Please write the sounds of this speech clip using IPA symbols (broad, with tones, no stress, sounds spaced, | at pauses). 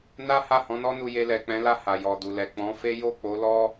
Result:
n a˦ h a˦˨ h ɔ̃˨˦ n ɔ˦ n u˧ j e˧ l ɛ˨ k͡p ɛ̃˨˦ l a˦˨ h a˨ j ɔ˨ d u˨ l ɛ˨ k͡p ɔ̃˨˦ f e˦ j o˦˨ k͡p o˨˦ l ɔ˦